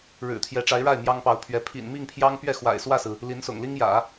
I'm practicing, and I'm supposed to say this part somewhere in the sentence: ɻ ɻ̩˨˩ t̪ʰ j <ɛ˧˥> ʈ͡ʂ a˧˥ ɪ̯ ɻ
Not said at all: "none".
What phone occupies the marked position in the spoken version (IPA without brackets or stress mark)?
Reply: ɛ˧˥